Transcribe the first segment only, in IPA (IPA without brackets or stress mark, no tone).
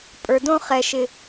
pʼ